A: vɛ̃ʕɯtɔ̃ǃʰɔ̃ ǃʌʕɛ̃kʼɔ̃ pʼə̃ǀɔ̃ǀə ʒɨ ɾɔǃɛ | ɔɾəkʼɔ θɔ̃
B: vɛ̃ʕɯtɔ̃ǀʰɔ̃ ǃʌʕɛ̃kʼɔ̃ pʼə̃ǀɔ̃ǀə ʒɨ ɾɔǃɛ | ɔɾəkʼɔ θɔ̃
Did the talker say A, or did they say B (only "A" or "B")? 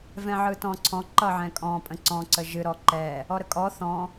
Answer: B